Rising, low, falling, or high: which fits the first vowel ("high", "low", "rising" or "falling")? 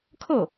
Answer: falling